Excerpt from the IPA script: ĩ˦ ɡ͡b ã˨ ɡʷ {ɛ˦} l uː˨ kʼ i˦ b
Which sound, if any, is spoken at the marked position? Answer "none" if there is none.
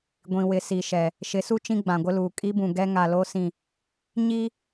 ɪ˦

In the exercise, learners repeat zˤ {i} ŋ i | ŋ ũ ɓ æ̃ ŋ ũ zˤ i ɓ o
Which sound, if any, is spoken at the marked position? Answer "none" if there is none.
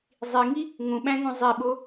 i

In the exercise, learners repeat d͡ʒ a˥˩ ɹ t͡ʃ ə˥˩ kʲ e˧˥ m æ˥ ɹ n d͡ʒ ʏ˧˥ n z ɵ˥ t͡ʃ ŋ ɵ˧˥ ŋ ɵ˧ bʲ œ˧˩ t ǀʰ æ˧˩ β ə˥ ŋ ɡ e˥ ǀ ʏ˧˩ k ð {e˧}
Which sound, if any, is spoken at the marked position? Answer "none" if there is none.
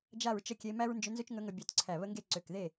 e˥˩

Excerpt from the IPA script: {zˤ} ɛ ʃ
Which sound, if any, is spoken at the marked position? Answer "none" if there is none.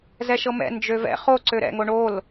z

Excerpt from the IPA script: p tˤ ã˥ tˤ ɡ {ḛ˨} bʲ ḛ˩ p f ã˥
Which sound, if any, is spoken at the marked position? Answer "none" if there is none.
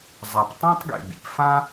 ḛ˨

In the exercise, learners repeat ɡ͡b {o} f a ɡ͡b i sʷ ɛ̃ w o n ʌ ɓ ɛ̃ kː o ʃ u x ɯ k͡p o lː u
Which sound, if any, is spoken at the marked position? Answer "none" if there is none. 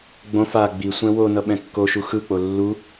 õ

